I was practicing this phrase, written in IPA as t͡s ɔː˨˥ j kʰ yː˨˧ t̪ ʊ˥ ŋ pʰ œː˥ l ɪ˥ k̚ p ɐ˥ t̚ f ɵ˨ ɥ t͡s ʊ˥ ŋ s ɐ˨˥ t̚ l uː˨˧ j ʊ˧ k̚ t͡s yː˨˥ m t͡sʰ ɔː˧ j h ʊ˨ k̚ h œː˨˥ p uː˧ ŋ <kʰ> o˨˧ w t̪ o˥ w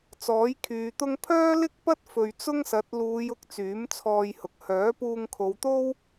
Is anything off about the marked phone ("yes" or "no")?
no